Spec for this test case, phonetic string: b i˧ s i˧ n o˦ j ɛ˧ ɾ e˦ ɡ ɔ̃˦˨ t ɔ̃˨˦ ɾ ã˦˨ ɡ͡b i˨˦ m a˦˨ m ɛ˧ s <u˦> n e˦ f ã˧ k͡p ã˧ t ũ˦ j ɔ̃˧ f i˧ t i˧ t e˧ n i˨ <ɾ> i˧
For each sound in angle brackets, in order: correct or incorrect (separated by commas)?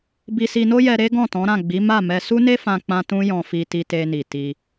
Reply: correct, incorrect